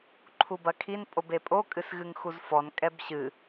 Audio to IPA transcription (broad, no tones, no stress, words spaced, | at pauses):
ǃʰubɐkʰin pʼobepʼo kʼɨsɣɨŋxuzfɔn kʼɛbɕɨ